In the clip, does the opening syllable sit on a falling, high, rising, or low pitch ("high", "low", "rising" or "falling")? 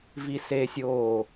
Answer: high